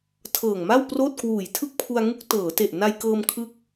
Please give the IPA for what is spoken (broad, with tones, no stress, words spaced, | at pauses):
tʰɤː˨˩ŋma˥˩w proː˥˩t̚kwuː˨˩j tʰɯ˥˩k̚pʰu˧a̯ŋu˦˥k̚ tɤː˩˦te˨˩ʔ na˧jkɤː˧m kʰɯ˦˥k̚